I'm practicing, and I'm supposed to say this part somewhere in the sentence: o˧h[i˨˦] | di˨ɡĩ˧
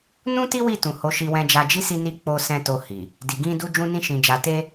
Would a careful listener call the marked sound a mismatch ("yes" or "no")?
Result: yes